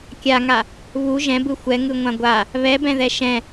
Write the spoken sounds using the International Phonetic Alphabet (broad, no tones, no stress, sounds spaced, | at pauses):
kʲ a ŋ a | β u ʒ ɛ̃ b ɯ xʷ ɛ ŋ ɯ ŋʷ ã ɡʷ a | β ɛ b ɛ̃ ð ɛ ʃ ɛ̃